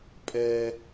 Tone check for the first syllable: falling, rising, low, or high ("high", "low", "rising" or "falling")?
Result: high